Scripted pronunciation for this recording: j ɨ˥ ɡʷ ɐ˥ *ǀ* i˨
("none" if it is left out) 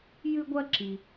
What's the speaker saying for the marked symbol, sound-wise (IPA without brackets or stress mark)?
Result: ǁ